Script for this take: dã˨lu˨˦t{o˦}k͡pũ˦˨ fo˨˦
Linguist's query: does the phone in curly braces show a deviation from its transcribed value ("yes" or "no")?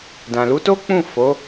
no